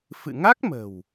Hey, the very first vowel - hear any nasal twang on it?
no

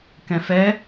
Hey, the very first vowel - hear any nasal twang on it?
yes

